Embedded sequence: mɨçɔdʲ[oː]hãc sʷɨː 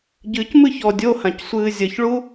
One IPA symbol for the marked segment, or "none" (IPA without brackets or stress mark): o